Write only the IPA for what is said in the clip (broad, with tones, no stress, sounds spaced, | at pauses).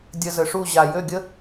dʲ ə˧ z ə˨ ʂ u˦˨ ʑ a˨ j ø˦˨ ɡʲ ə˦